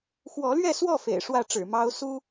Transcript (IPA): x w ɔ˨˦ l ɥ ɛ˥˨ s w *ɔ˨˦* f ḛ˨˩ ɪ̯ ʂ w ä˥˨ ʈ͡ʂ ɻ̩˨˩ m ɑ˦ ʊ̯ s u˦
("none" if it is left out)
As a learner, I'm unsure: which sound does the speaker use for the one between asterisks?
ɔ˥˨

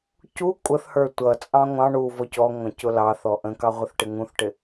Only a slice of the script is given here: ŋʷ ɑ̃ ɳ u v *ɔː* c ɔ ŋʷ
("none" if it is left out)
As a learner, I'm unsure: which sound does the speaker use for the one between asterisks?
ɔ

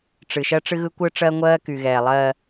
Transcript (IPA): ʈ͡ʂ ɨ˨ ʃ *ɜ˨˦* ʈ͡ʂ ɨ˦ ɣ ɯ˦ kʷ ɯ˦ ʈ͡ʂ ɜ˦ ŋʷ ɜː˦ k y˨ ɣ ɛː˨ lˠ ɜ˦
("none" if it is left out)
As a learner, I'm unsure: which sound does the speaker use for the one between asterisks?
ɜ˦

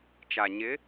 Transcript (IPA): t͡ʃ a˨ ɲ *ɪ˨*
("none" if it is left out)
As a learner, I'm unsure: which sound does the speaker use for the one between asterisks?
ɪ˨˦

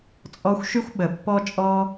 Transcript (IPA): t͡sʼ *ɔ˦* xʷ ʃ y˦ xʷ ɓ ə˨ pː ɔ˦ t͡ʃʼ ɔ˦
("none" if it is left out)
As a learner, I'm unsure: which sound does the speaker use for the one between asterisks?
ɔ˦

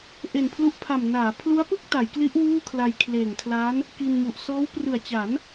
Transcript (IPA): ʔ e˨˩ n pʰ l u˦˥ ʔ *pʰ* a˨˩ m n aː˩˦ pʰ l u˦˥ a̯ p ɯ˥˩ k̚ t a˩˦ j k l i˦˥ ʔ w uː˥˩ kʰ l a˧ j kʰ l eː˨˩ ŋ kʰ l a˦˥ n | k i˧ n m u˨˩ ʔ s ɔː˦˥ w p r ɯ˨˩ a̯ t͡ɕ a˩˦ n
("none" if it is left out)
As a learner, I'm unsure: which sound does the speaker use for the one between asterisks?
pʰ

